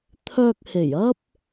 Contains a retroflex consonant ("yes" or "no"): no